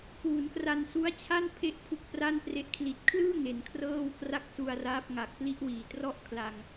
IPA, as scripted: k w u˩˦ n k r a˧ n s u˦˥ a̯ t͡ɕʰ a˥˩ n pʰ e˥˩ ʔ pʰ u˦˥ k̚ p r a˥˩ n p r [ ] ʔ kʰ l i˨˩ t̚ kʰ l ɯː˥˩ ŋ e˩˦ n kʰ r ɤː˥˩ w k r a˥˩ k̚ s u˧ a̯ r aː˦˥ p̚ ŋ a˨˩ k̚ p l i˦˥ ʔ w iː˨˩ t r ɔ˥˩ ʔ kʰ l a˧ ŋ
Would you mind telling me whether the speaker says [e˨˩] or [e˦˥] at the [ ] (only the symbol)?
e˦˥